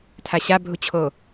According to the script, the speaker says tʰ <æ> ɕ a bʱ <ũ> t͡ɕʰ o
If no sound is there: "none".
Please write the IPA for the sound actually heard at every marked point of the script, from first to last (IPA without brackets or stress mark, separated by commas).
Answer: a, u